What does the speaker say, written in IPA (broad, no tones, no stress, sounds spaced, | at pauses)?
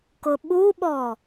k ʊ ɓ u ɓ ɔ